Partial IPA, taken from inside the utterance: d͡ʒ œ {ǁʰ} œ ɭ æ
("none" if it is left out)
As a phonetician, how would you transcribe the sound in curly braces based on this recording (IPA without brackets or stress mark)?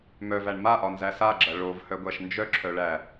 ǁʰ